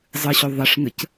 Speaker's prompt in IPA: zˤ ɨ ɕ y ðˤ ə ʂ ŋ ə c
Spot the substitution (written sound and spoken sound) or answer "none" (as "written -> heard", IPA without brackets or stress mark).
y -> ø